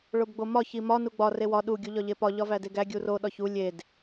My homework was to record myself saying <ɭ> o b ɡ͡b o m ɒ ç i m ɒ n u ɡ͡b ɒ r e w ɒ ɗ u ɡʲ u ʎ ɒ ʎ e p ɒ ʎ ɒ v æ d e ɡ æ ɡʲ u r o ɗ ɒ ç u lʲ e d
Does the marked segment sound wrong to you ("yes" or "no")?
no